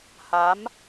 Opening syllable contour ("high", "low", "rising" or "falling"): rising